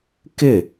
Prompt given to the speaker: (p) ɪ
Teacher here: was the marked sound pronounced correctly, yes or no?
no